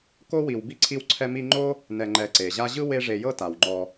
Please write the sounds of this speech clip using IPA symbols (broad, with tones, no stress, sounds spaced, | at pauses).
k o˥ w i˨ w b i˥ ǀʰ i˦ w ǀʰ ɛ˦ m i˦ ŋ͡ǃ o˥ | n ɛ˨ ŋ͡ǃ ɛ˨ ǀ e˩ ʑ a˦ ʑ ɯ˥ w e˦ ʐ e˨ j ɤ˦ t a˩ w ŋ͡ǃ ɔ˨